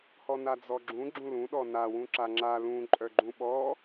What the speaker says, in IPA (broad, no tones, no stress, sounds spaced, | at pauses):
h ɔ n a d͡z ɔ ɡ͡ǁ ũ ɡ͡ǁ ũ l ũ ɗ ɔ n a w ũ ǁ a ŋ͡ǁ a l ũ ǃʼ œ ɡ͡ǃ ũ ɓ ɔ